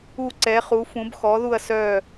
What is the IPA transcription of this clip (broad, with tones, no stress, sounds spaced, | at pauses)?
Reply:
u˦˨ ǀ ɛ˩˥ χ u˩˥ f ũ˩˥ b x ɔ˩˥ ð u˦˨ ɐ̯ s œ˦˨